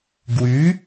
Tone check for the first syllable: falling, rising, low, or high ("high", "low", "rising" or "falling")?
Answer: rising